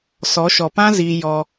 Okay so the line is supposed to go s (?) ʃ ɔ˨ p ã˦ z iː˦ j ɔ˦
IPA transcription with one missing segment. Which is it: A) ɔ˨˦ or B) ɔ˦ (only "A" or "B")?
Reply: A